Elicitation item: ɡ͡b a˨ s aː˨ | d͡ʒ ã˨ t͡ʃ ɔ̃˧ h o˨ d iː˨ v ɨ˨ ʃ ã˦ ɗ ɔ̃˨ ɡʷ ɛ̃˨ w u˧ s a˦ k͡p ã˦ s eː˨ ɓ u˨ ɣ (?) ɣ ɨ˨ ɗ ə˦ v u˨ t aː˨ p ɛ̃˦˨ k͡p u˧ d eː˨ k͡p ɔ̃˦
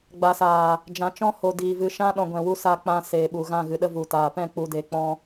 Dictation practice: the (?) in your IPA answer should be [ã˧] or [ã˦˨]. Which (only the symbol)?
ã˦˨